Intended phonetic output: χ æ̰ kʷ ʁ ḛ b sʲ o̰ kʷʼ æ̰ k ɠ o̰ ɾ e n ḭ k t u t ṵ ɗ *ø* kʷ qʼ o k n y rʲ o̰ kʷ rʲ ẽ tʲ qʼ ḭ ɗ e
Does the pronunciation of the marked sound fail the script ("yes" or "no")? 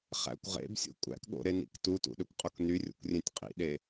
no